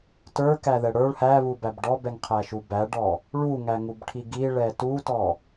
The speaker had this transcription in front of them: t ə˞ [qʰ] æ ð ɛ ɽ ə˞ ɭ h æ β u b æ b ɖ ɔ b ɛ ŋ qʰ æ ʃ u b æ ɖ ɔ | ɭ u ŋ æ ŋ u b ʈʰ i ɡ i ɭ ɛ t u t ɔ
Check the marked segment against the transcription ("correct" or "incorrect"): incorrect